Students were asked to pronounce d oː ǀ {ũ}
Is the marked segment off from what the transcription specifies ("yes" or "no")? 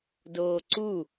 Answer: yes